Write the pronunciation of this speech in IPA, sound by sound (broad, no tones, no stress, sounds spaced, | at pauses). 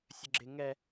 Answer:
sʲ ə ɡ͡ǁ ɪ ŋ ɛ